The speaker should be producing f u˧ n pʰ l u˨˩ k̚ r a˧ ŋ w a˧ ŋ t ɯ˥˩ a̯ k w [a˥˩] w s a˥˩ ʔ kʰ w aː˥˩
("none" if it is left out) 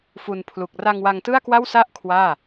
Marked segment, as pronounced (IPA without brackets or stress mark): a˥˩